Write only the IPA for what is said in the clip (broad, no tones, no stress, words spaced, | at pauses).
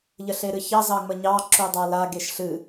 ʎəɬeɾɨçɑ zɑŋ͡məɲɑ ǁudˤala ɡeʃɬɨ